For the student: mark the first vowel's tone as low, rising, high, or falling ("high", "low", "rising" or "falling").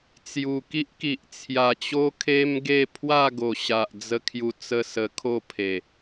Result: low